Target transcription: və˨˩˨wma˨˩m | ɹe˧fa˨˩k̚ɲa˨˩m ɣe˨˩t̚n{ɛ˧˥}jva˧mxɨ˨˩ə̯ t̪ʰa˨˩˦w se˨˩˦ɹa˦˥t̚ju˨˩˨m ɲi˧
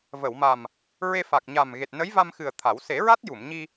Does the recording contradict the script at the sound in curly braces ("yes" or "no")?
yes